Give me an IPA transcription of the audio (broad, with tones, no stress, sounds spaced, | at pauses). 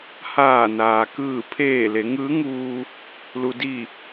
h aː˧˩ n aː˩ k ɯː˧˩ pʰ eː˧˩ l e˩˧ ŋ ɯː˧˥ ŋ uː˧ | l u˩ d i˧˩